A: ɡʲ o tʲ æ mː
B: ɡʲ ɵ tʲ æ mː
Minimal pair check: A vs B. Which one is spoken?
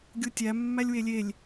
A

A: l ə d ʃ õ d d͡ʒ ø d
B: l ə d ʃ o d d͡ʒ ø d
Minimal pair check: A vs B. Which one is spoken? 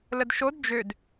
B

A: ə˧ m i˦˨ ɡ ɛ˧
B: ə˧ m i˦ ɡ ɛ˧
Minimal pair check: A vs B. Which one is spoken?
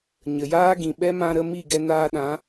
A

